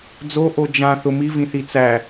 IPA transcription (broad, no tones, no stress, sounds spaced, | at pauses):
d͡z o ʔ o d͡ʒ ã θ ʊ m i v ĩ θ i t͡s æ